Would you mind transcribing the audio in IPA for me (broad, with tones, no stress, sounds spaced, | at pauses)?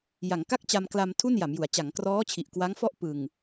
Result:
j a˩˦ ŋ k a˥˩ k̚ t͡ɕ a˧ m k l a˧ m tʰ u˥˩ n j a˩˦ m j u˩˦ a̯ t͡ɕ a˩˦ ŋ k r ɔː˦˥ t͡ɕʰ i˨˩ ʔ k w a˦˥ ŋ f ɔ˥˩ ʔ p ɯ˨˩ ŋ